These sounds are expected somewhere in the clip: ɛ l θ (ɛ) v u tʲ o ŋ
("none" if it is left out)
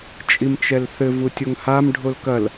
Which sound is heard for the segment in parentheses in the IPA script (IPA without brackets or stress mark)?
ɘ